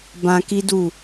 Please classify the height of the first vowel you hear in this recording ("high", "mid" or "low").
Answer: low